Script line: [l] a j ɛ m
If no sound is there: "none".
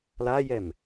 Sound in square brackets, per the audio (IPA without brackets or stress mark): l